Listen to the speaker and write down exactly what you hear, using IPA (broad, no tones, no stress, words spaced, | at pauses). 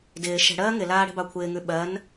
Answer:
dɪː ʃɛ̤ɽɜː ŋɪlaː ɽɛ̤bɑkʷʰɪːŋʉ ɓɜn